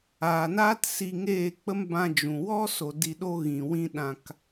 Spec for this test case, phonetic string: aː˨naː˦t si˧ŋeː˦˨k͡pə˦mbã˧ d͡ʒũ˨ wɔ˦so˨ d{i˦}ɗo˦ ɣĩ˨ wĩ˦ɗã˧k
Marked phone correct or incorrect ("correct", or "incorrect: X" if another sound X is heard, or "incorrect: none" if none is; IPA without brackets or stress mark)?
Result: incorrect: i˧